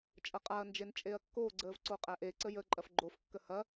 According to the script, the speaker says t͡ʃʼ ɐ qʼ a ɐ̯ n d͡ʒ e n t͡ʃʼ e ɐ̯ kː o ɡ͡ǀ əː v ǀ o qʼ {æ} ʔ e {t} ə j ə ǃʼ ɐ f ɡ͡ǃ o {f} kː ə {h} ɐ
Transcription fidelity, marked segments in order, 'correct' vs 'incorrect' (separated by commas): correct, incorrect, correct, correct